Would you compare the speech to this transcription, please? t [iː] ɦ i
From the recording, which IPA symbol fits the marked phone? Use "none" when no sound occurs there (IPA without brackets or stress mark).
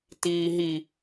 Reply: iː